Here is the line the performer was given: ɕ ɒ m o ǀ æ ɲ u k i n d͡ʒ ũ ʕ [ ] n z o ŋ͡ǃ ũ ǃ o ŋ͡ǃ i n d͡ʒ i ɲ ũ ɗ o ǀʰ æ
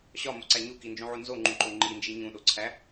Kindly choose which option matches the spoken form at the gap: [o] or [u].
u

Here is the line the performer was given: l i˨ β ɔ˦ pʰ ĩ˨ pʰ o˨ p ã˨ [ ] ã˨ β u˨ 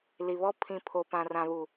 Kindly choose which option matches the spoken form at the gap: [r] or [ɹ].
r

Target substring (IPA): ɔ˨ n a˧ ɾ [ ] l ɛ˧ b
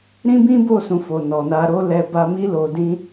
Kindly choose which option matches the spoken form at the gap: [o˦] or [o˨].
o˦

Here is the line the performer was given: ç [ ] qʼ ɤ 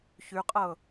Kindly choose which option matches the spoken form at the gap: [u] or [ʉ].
ʉ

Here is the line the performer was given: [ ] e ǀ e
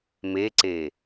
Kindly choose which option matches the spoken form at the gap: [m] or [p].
m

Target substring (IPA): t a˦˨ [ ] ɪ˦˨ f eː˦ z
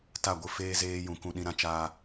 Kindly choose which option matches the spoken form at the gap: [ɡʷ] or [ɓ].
ɡʷ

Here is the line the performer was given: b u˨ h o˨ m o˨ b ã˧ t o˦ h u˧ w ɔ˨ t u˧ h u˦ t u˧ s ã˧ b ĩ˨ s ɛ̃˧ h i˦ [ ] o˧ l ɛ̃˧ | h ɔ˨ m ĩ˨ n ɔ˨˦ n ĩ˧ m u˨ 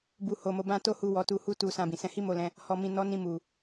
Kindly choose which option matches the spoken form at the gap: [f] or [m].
m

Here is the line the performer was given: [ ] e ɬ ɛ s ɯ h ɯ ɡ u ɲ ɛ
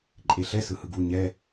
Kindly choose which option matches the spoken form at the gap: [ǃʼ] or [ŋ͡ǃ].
ǃʼ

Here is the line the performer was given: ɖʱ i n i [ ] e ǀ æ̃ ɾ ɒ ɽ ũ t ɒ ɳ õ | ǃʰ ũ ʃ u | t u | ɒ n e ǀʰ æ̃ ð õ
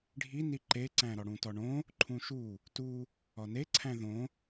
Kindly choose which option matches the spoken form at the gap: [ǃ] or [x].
ǃ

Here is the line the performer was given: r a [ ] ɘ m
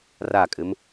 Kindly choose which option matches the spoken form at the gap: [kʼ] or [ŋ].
kʼ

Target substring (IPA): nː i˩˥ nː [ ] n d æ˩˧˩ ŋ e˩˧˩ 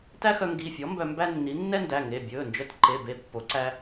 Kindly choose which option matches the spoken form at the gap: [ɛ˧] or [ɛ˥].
ɛ˥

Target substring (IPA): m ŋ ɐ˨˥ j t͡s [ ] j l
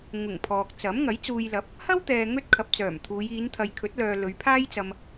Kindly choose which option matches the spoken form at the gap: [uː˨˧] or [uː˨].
uː˨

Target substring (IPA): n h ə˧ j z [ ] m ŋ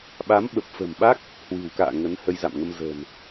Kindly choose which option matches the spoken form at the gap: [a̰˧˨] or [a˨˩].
a̰˧˨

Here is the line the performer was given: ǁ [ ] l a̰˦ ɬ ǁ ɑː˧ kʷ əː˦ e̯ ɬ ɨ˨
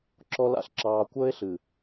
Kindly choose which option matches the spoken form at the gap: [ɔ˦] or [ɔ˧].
ɔ˧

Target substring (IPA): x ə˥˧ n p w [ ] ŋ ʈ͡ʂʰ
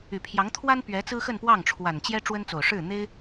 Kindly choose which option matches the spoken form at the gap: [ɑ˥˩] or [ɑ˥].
ɑ˥˩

